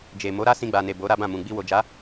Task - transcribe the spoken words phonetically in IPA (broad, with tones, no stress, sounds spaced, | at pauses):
d͡ʒ e˨ m o˨˦ ɾ a˦ s ĩ˧ ɡ͡b a˨ n e˨ b o˨˦ ɾ a˦ b ã˦˨ m ũ˨ ɡ͡b i˧ w o˨ d͡ʒ a˨˦